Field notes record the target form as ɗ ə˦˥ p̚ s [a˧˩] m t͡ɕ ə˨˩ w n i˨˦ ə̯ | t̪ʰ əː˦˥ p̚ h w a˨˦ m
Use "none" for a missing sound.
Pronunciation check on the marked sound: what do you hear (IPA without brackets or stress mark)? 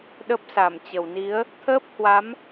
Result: a˧˩